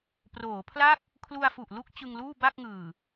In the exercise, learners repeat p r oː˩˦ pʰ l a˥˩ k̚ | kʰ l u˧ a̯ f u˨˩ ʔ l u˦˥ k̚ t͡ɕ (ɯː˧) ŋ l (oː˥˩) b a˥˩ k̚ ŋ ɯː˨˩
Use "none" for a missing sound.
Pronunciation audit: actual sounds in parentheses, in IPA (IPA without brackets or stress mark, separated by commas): ɯ˧, uː˥˩